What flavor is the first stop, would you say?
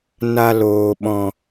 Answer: implosive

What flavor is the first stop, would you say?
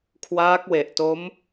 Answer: aspirated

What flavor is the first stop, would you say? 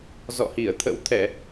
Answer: aspirated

